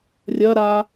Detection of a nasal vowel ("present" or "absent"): absent